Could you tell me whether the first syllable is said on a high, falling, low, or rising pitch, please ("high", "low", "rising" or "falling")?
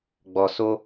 low